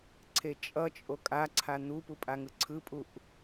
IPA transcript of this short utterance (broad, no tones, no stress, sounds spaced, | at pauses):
ǀʰ e t͡ʃʼ ʌ t͡ʃʼ o kʼ a ǀʰ a n̪ u p u pʼ a ŋ ɯ ǀʰ ɯ pʼ u ʔ